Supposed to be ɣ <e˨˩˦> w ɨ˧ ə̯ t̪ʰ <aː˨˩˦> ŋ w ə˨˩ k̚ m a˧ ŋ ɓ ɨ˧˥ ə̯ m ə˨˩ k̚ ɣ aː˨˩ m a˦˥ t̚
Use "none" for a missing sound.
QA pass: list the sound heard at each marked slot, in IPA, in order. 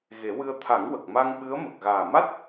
e˨˩˦, a˨˩˦

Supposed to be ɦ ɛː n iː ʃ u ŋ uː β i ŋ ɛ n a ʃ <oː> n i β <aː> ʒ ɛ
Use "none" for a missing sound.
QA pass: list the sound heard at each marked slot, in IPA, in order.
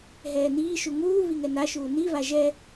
uː, a

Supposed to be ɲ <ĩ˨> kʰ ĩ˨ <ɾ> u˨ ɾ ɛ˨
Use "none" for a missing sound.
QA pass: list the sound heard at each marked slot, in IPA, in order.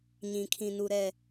ĩ˨, n

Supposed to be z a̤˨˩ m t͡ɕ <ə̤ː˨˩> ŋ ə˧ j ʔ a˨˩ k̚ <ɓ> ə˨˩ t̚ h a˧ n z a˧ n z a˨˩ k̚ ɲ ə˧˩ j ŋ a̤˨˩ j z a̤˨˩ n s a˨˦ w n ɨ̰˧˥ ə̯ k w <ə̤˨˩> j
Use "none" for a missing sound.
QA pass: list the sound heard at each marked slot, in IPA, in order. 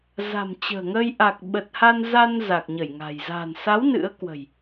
ə̤ː˨˩, ɓ, ə̤˨˩

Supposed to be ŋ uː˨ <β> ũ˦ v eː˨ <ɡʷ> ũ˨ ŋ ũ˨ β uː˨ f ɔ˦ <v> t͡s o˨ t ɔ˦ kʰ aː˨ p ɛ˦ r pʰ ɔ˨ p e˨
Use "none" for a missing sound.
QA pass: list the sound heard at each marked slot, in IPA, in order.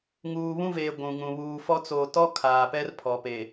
β, ɡʷ, none

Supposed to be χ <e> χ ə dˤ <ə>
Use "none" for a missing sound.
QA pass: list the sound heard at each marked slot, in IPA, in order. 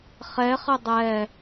ɛ, ɛ

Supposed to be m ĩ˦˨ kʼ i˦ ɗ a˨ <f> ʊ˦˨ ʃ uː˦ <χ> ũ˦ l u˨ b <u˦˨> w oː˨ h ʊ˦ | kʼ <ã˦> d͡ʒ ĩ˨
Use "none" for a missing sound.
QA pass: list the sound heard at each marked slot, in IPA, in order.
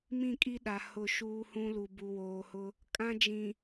h, h, u˨, ã˦

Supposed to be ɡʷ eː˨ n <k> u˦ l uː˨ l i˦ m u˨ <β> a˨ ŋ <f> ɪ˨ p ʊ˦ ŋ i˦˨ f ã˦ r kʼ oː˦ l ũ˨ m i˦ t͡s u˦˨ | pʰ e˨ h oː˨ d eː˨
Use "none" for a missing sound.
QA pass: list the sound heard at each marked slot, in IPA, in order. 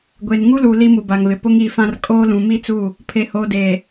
ŋ, b, β

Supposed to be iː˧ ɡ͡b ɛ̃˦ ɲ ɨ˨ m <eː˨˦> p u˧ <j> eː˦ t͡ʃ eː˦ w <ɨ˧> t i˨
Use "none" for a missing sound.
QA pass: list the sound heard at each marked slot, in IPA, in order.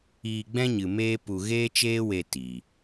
eː˦, ɣ, e˧

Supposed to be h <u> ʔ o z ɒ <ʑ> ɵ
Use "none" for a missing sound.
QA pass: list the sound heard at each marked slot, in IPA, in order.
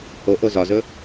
o, z

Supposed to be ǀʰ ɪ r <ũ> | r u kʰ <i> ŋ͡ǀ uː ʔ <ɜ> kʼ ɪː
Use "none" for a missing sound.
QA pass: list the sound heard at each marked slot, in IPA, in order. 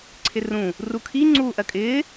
ũ, i, ɜ

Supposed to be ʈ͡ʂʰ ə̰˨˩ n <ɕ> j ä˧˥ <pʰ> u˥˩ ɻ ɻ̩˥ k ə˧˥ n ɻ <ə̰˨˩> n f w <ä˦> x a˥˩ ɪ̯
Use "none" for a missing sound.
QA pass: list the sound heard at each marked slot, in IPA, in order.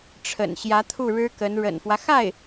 ɕ, t̪ʰ, ə̰˨˩, ä˦

